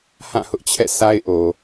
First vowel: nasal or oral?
nasal